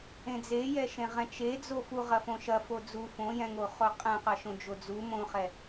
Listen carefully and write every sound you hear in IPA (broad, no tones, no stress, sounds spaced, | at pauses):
ẽ d͡z e j ɛ ʃ ẽ ʁ ɛ̃ t͡ʃ e d͡z o f u ʁ ɐ f õ ʃ ɐ f o d͡z u f õ j ɛ̃ ŋ o χ o qʼ ɛ̃ q ɐ ʃ õ d͡ʒ o d͡z u m õ χ ɛ